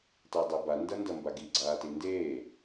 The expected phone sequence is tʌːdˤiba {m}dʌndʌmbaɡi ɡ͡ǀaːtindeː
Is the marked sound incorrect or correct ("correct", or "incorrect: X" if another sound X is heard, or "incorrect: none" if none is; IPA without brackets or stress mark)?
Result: incorrect: n